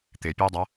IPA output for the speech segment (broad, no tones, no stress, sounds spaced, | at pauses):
t̪ ɪ pʲ e dˤ ɐ